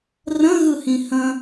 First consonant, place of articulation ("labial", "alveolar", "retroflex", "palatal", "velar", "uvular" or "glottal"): alveolar